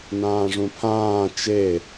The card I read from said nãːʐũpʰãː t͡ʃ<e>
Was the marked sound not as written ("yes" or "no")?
no